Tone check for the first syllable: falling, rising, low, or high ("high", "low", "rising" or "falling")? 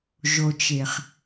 low